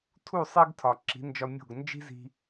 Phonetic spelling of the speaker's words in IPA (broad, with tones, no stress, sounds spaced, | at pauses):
tʰ u˦˨ sˤ e˦ ɡ tʰ ɒ˨ ǁ i̤˨˦ n d͡ʒ ɒ˧ mʲ o̤˦˨ ɡ n d͡ʒ i̤˦ z i̤˧